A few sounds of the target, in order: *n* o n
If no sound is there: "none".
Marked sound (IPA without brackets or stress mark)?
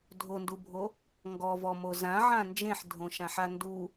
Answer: dʱ